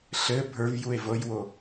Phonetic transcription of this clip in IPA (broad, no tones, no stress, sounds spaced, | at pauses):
ɬ ɘ bʱ ə˞ v j u e̯ v ɤ j w o